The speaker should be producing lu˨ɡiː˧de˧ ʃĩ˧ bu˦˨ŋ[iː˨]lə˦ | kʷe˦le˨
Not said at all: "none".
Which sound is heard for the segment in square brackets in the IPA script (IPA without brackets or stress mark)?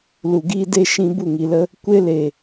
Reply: i˨